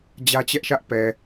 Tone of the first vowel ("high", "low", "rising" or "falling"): high